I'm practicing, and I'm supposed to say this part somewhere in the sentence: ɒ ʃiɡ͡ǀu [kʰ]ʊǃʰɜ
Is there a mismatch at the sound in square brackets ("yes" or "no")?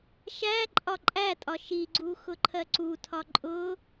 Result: yes